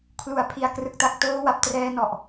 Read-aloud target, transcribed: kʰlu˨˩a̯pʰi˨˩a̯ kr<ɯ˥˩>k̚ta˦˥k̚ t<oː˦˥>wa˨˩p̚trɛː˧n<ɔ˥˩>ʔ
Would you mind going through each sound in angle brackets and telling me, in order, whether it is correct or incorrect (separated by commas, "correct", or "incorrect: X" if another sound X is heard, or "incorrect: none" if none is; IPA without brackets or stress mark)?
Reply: incorrect: ɯ˨˩, correct, incorrect: ɔ˨˩